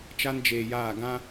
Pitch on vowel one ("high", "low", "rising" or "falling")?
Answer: high